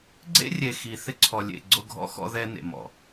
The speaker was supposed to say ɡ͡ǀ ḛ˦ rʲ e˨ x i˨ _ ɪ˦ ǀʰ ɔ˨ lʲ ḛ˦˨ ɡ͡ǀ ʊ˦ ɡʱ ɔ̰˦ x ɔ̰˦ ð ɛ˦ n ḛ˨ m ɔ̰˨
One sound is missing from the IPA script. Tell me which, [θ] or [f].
θ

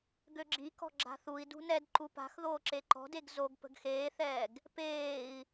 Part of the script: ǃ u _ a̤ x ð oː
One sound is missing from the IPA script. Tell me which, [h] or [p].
p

